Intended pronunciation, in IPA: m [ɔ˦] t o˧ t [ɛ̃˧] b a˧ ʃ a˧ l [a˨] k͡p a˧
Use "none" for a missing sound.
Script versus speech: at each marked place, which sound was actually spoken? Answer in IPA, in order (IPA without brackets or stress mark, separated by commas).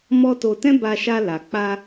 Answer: ɔ˦, ɛ̃˦, a˨